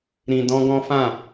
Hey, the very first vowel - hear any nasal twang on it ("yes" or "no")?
yes